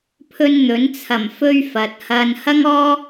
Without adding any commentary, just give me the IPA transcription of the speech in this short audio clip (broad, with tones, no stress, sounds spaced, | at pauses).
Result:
pʰ ɵ˧ n n̪ ɵ˨˥ n t͡sʰ ɐ˨˩ m f ɵ˥ ɥ f ɐ˨ t̚ h ɐ˨ n h ɐ˥ ŋ ɔː˥